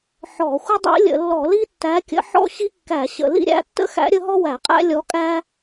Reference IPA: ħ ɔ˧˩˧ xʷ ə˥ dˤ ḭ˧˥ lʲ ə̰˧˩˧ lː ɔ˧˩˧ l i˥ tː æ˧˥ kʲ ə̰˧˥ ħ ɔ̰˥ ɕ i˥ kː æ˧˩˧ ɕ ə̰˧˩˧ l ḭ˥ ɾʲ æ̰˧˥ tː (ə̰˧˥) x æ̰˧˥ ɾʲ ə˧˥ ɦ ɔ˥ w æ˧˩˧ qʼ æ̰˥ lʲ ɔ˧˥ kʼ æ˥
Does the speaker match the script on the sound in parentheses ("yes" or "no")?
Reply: no